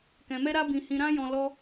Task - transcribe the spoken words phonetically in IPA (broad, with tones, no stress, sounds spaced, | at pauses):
k ɛ̃˧ m ɛ˦ ɾ a˦ b ĩ˧ h ĩ˧ ɾ ã˦ j ɔ̃˧ l ɔ˦